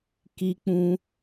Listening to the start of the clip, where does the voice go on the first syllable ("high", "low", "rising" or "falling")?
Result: high